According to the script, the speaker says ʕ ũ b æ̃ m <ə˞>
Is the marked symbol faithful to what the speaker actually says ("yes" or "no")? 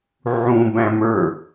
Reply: yes